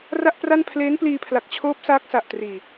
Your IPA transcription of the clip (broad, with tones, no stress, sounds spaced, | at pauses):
r a˥˩ ʔ p r a˥˩ n pʰ l eː˦˥ n p l iː˧ pʰ l a˨˩ k̚ t͡ɕʰ oː˦˥ p̚ s aː˦˥ k̚ s a˨˩ ʔ t r iː˨˩